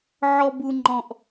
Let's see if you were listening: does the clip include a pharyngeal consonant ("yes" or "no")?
yes